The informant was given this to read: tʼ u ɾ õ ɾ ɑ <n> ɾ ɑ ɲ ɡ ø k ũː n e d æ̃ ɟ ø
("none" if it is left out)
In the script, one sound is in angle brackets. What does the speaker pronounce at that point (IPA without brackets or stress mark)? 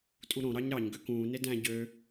ɲ